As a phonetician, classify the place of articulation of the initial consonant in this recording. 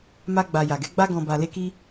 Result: labial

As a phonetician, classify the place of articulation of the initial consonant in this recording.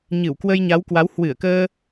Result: palatal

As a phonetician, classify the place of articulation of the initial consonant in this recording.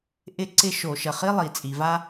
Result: glottal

